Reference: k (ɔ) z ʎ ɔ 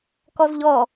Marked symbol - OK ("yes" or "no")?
yes